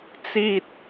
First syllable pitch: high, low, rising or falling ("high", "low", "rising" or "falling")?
high